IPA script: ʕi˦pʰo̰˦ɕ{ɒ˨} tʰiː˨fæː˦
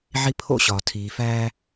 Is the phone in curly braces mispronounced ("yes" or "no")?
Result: no